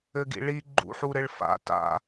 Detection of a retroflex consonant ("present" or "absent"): present